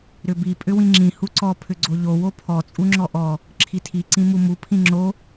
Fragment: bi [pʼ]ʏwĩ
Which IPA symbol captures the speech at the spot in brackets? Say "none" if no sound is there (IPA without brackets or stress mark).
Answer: pʼ